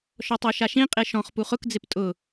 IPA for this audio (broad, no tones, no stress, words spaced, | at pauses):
ʃɔtˤoʃaʃĩ qʼeʃɔ̃χ puχʊk d͡zɪptʼʊ